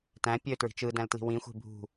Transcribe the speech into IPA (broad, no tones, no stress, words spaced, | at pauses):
tæ̃ pʲø tɹi̤t͡ʃɯ dæ̃ltli̤wĩ xʷe̤bʱṳ